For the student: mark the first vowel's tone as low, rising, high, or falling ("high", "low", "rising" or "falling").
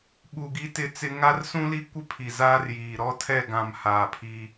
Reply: low